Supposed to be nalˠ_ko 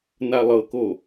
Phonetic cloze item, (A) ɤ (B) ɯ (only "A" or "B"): A